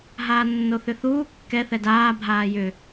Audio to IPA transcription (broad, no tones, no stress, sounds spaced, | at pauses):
ɦ aː nː o θ ʏ θ uː kː ɛ θ ɛ d aː bʱ aː j ʏ